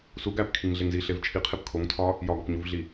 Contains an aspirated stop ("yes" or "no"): yes